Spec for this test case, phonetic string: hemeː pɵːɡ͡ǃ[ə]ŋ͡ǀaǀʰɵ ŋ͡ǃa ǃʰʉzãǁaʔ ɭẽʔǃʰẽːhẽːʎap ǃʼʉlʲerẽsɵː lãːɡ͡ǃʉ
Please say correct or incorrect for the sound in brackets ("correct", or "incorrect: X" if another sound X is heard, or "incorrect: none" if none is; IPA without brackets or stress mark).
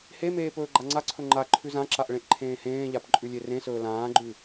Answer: incorrect: a